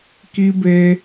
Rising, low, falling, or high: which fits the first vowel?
high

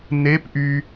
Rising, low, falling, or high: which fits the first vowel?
rising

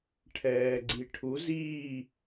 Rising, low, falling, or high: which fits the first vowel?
low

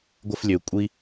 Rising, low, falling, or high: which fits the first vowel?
high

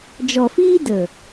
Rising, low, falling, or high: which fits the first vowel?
low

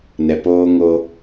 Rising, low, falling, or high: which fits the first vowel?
low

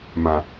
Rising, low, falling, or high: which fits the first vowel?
low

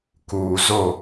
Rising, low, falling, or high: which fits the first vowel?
low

